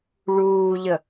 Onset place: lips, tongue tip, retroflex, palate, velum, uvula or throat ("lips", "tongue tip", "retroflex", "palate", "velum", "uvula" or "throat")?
retroflex